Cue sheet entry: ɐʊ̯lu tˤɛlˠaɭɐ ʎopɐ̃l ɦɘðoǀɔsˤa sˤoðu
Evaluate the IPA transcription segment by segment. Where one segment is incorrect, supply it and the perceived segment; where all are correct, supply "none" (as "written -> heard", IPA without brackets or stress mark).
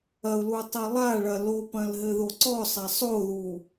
ʎ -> l